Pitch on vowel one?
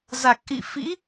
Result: low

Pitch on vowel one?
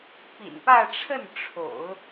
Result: low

